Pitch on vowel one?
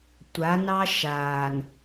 rising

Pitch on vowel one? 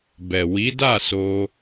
low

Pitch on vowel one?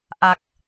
low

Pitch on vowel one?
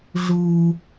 low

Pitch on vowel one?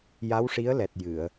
rising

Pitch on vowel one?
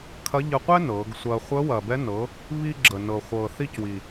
rising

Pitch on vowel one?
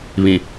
low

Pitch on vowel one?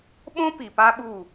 high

